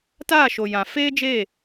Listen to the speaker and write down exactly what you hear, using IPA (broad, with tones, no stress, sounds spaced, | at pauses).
t aː˦˨ ʃ o˨ j ã˨ f eː˦ d͡ʒ e˦˨